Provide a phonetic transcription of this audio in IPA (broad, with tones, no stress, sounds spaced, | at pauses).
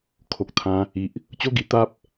kʰ o˨ k̚ t̪ʰ ã˧ | i˨ ʔ | t͡ɕ o˦ ɡ i˧ t̪ a˦ p̚